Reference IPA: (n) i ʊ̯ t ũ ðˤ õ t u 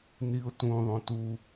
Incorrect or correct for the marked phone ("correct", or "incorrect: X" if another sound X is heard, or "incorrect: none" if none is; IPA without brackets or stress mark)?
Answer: correct